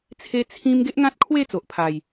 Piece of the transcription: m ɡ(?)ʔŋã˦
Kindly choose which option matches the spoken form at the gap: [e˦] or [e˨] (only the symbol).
e˦